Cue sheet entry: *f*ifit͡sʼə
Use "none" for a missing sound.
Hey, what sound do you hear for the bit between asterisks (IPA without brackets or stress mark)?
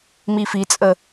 m